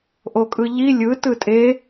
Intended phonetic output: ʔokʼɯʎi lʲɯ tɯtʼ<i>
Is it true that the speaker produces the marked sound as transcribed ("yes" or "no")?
no